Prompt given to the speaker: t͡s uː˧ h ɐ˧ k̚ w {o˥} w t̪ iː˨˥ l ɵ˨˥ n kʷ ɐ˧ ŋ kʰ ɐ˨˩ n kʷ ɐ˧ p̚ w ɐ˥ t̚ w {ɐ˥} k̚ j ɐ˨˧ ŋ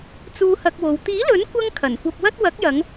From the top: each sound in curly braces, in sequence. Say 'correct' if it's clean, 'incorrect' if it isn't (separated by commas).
incorrect, incorrect